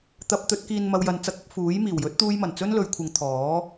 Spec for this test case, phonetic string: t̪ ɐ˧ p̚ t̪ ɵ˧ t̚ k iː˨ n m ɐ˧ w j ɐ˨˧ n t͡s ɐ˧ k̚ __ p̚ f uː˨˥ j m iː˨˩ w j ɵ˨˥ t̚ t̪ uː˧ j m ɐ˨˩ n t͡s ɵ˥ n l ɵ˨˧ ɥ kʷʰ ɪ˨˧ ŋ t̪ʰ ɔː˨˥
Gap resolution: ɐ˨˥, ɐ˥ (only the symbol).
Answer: ɐ˨˥